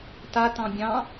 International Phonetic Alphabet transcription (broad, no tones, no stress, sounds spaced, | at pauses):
t a t ɑ̃ bʲ ɑ̃